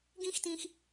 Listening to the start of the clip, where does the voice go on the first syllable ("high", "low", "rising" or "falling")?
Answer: high